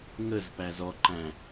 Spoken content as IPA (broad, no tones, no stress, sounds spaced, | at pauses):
ŋ ə z p æ z ɔ ǃ æ̃